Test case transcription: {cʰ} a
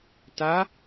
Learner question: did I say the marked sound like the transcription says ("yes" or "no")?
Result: no